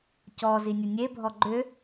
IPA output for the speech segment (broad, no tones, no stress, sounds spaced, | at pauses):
c ɔ z i nʲ ʊ nʲ e bʱ ɔ ɡ͡ǃ ʏ